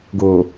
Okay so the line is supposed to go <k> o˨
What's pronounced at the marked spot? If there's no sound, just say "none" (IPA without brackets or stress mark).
ɡ